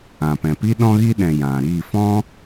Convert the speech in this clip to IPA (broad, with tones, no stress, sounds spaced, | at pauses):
ã˨ p ɛ̃˨ p i˦ ɗ ɔ̃˦ ɣ i˦ ɗ ɛ̃˨ j ã˨ ɾ i˦˨ f ɔ̃˦